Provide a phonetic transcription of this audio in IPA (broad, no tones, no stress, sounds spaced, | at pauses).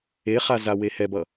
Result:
e χ a z a w e h ɛ b ʌ